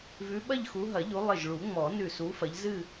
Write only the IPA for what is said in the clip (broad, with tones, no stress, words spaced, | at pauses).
vʉ˨˦ɓɐ˥˧ʎxu˨˦ ɦɐ˨˩˦ʎu˨˦ lˠɪ˧˩ʒɭu˨˩˦ ŋ͡mɔ˨˩˦nʉ˧˩ su˨˦fɐ˨˦ʎzɨ˥˧